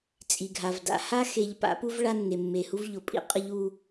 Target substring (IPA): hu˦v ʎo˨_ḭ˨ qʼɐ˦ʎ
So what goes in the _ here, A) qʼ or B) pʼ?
B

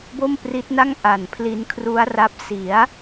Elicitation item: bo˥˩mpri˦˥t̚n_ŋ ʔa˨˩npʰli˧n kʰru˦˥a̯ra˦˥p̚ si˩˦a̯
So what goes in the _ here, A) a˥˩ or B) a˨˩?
A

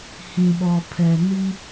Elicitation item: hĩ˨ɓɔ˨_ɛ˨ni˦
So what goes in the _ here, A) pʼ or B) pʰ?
B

